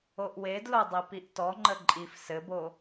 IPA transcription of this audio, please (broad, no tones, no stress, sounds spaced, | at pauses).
o ʔ w e d l o dˤ i p i ʔ t ɔ ŋ͡ǃ ə ǃʼ i f s ɘ b o